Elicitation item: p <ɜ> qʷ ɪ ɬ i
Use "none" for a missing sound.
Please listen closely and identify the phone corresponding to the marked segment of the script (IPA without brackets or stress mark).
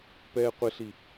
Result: ɛ